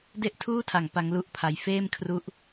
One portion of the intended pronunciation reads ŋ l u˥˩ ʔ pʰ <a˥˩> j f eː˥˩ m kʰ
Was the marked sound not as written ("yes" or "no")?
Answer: yes